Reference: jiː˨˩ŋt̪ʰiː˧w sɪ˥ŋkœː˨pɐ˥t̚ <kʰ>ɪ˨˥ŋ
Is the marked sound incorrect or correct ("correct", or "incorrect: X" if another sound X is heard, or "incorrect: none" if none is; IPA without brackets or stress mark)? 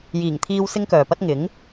incorrect: ŋ